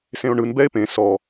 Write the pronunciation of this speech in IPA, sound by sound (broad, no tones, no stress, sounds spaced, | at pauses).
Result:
s ẽ o̯ ɳ ɯ n b ɛ e̯ p ẽ s ɔ